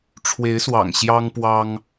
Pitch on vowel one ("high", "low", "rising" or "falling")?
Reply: rising